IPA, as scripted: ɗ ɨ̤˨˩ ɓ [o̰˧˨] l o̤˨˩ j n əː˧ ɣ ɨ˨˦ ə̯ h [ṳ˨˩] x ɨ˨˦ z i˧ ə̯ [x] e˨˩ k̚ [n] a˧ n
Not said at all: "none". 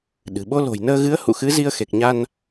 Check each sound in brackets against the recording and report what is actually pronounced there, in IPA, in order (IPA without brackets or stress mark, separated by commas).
o˧, ṵ˧˨, x, ɲ